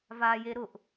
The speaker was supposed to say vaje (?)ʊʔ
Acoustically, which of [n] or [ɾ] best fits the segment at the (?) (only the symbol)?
ɾ